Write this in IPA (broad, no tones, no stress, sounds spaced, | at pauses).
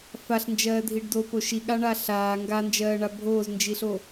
f a ɬ n d͡ʒ ɜː dʱ i ɖ d o p o ʃ i ɠ a ɳ a ɬ aː ŋ ɡ a n d͡ʒ ɜː ɳ a bʱ oː z n d͡ʒ i ɬ o